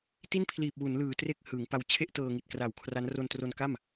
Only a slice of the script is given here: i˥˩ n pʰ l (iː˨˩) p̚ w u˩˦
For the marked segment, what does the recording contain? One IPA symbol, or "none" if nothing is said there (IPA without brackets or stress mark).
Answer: iː˨˩